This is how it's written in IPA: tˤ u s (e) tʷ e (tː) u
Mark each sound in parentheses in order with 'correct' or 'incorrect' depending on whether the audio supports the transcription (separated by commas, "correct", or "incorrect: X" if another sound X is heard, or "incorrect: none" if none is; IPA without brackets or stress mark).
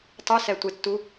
incorrect: ɛ, correct